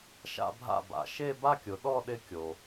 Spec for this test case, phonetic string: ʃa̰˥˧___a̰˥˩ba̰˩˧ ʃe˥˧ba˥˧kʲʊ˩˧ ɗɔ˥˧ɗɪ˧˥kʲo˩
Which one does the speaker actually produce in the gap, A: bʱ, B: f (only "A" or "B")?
A